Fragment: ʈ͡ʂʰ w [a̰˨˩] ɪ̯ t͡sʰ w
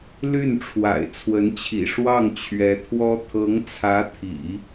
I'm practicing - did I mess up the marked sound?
no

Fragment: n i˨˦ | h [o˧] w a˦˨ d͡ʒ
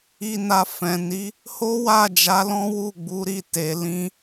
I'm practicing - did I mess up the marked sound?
yes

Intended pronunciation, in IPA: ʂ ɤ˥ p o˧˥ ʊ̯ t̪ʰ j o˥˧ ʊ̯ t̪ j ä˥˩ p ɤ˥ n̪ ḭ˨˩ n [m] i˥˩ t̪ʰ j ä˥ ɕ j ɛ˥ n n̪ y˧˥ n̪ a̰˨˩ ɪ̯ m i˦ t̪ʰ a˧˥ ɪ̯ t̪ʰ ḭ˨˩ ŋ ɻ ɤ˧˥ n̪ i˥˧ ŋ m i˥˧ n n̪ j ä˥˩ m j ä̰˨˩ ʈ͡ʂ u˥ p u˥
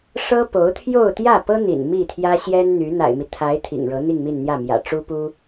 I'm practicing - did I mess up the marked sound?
no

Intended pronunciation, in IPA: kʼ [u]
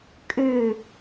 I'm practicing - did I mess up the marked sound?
yes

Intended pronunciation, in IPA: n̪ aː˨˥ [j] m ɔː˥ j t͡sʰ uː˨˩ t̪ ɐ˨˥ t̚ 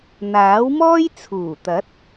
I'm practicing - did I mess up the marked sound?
yes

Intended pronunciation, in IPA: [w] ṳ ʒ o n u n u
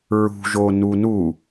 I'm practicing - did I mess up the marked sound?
yes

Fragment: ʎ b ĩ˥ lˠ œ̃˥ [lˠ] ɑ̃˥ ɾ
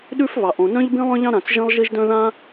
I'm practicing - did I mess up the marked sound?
yes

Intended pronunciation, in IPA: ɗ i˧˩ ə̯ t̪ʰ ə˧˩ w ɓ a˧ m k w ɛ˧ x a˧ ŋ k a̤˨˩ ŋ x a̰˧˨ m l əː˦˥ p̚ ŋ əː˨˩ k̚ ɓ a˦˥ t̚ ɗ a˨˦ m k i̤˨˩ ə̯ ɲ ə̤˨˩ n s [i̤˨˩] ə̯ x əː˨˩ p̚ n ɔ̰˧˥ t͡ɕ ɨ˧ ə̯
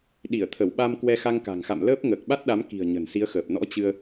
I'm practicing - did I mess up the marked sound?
yes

